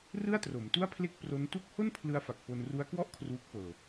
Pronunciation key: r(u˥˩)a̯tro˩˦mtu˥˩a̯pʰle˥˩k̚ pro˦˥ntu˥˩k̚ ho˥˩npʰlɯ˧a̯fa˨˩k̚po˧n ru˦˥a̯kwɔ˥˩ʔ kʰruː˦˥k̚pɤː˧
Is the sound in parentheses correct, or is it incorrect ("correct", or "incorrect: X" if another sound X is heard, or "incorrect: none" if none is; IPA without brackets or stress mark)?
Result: incorrect: ɯ˥˩